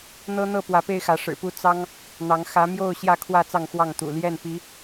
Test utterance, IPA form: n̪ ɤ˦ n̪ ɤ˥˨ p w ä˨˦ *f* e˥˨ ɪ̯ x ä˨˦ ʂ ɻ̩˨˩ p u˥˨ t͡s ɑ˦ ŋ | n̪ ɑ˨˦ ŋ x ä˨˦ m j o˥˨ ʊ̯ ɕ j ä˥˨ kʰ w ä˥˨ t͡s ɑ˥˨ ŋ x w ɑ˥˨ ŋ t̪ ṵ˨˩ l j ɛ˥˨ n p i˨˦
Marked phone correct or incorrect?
incorrect